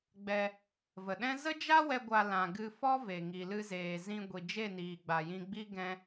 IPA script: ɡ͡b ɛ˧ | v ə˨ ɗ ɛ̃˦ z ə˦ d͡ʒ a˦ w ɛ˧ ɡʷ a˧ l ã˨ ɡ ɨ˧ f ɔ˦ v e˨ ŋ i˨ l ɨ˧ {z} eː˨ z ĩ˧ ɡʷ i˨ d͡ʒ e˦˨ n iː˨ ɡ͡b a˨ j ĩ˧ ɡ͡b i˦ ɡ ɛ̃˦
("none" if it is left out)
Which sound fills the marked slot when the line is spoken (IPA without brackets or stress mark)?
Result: z